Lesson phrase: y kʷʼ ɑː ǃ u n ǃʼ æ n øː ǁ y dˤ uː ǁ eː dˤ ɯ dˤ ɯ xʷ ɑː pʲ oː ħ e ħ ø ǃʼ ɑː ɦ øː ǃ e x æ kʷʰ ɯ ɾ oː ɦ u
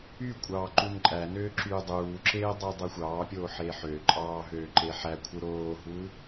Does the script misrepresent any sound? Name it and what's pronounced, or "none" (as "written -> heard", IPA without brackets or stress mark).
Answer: x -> ħ